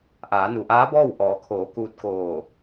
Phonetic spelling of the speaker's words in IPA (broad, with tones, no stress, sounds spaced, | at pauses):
ʔ aː˩˧ n u˩ ʔ aː˧˥ b ɔː˥˨ w ʔ ɔː˩˧ kʰ oː˩˧ k uː˧ t̚ k oː˧˩